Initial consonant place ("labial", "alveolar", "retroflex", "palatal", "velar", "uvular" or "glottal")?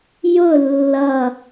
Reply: palatal